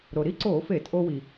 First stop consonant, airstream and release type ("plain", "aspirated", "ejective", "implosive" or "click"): click